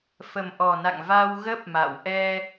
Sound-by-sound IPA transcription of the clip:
fə˨˩mʔɔ˨˩na̰˧˨ŋ va˧w ɣə˦˥p̚ ma̰˧˨w ʔɛ˧

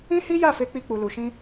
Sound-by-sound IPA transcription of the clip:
ĩ˦hi˦ja˦˨fe˧ k͡pi˦k͡pu˧lu˧ʃĩ˦

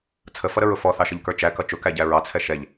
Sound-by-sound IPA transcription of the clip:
t͡sʰəfʌɾəɹʊ fɔθɑʃʌʎkə˞ t͡ʃækʌ t͡ʃʊkæɟæ ɹɑt͡sʰɛ ʃɛʎ

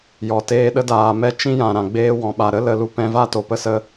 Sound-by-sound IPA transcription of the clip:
jɔ˨teː˧ɗə˦ daː˨mɛ˦ t͡ʃĩ˦jã˨ ɾã˨ɡ͡beː˦ wɔ̃˨ɓa˨ɾə˦ lə˨˦lu˦ pɛ̃˧va˦ to˨pə˦sə˦

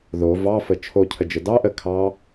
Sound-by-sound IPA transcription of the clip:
ðo vɑfə t͡ʃʰocʰəd͡ʒə dɑ ʔə kʰɑ

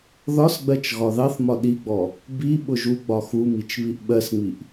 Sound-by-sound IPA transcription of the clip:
ðɒsɡ͡bɜt͡ʃ ɣɒðɑθmɒ ɗiɡ͡bɔ | bi ɓʊʒu ɡ͡bɒxumit͡ʃ βiʔɓɜsŋ͡miʔ

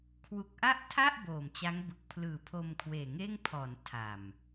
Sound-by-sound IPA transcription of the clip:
kʰwu˨˩k̚ʔa˥˩ʔtʰa˥˩ʔ boː˨˩mt͡ɕa˦˥ŋ bɯ˨˩k̚pʰlɯː˨˩pʰo˧m kʰweː˨˩ŋeː˥˩ŋpʰɔː˩˦n tʰa˨˩m

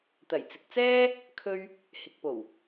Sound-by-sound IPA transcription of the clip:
t̪ɐ˨˩jt͡sɪ˨k̚t͡sɛː˥ | kʰɵ˥ɥ | hɪ˨k̚po˨˩w

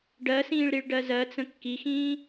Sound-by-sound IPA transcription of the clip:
ɖɜsĩːɭ ɾiɭɖɜzɜt͡sə̃ kːixĩː

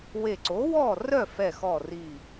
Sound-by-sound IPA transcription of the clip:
we˧˩ǀo˨˥wɔ˥˨ rœ˥˨fɛ˧˩xɔ˧˩ ri˧˩

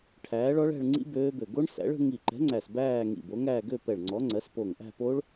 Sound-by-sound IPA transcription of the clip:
ʈʰæː˨˥ɭɔ˨˥ɭæ̤˥˧ɭ ŋ͡ǀḭ˦˥ bøː˦˥bø˧˩ ɡo˦˥ɳsæ̰˨˥ɭ ə̤˦˥ ŋi˧˩ǃɛ̤˨˥ŋ͡ǀæ˧˩s bæː˥˧ŋḭ˧˩ bo˨˥ŋæː˥˧ ɡø˥˧pɛ˧˩ɭŋ͡ǀɔ˨˥ŋ͡ǀɜ˨˥s po˧˩ŋʔæ̤˥˧ po˦˥ɭ

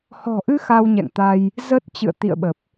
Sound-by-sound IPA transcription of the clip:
hɔ̤˨˩ʔɨ˧ xa˧wɲɛ̰˧˨ŋt̪a˧j | zə˦˥t̚t͡ɕɨ̰˧˨ə̯ t̪ḭ˧˨ə̯ɓə˨˩p̚

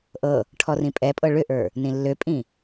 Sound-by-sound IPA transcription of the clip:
ʔɤ | ʈʰɔrĩpʼɛpʼɤ ɭʏʔə˞ | nĩlːøpʼĩ

